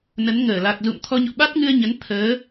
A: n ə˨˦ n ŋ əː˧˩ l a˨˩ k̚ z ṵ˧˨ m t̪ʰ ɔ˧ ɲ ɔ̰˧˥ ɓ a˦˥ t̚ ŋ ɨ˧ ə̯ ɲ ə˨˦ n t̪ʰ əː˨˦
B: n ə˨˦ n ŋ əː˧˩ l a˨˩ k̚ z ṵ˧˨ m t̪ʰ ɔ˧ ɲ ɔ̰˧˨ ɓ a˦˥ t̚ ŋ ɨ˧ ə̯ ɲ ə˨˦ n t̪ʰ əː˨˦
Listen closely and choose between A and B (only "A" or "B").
B